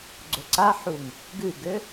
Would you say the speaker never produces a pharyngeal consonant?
no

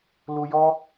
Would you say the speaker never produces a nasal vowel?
yes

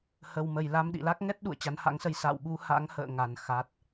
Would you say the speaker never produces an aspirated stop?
yes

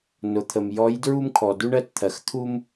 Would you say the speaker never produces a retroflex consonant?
no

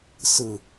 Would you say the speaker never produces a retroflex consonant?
yes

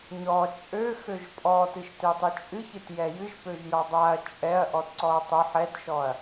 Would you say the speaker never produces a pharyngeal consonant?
no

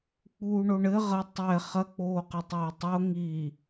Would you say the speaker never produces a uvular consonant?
no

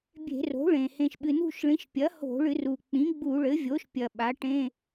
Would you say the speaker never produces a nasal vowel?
no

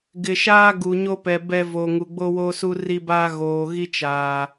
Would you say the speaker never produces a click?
yes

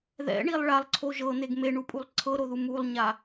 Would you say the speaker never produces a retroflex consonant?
no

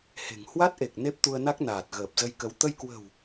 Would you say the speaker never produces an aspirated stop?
yes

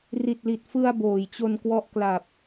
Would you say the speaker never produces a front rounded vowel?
yes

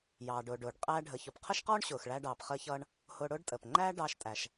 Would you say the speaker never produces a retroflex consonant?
no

